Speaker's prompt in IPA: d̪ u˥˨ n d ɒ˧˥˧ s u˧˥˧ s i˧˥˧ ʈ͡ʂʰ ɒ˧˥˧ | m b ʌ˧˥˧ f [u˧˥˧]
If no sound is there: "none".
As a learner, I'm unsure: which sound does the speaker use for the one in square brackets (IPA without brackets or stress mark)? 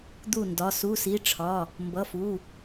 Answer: u˧˥˧